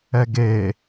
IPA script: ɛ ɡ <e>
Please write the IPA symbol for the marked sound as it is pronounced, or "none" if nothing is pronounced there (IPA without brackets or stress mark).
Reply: e